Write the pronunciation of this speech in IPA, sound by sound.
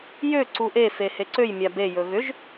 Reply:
j ø ǀ u ʔ e f e h e ǀ ø j mʲ a b e j ɵ ɣ ʏ ʒ

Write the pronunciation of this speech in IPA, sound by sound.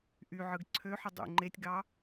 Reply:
ʔ y ʕ ɯ ɡ ǀʰ ø ħ ɯ dˤ ṵ ŋ͡ǃ e tʲ ɡ ɑ

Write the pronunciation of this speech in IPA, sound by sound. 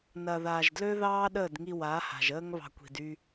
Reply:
n ɐ˨ ð aː˨ ʒ d l ø˦ ð ɑː˦ ɗ əː˦˨ d ŋ i˧ w a˨˦ h a̤˨ ʒ əː˦ ŋ β ɑ̤˧ kʷ i̤˨ d y˧

